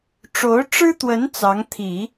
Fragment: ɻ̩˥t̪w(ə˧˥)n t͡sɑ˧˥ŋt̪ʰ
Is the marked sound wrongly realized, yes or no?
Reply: no